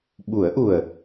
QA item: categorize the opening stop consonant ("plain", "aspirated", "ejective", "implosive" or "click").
implosive